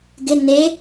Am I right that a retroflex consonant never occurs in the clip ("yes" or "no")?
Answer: yes